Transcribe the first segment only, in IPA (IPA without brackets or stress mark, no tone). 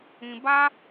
ĩ